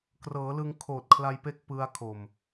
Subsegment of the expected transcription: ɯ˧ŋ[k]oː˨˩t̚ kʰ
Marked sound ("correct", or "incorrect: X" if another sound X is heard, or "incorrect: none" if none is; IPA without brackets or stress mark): incorrect: kʰ